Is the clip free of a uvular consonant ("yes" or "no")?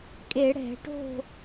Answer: yes